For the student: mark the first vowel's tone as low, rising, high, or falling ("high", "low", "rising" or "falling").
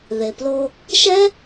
low